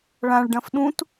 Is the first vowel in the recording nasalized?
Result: yes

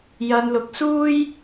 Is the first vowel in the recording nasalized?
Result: no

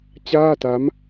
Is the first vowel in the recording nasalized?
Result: no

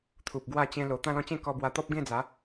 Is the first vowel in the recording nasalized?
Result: no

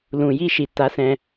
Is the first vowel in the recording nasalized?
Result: yes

